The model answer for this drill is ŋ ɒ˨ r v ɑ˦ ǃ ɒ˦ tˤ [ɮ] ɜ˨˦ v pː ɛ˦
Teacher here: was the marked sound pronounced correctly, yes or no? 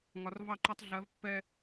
yes